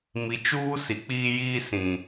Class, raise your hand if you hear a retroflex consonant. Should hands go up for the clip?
no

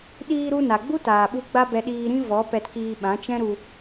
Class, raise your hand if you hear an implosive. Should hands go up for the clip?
yes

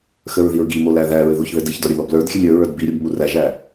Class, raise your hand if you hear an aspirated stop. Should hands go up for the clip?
no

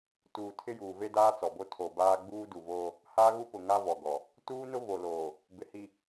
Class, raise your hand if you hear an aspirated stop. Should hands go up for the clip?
yes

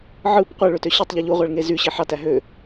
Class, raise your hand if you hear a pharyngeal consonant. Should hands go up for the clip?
yes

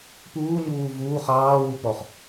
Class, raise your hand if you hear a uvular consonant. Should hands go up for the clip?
yes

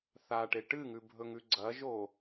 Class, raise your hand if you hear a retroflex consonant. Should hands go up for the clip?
yes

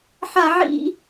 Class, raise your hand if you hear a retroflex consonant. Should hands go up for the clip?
no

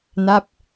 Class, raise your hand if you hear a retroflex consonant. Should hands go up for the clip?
no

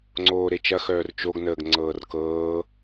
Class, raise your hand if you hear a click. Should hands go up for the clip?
yes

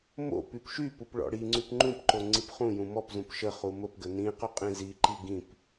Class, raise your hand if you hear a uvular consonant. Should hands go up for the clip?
yes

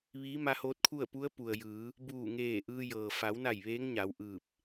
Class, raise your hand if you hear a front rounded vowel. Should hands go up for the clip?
no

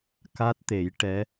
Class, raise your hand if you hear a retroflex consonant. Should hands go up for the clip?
yes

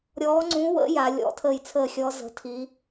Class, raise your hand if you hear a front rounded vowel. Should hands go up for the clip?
no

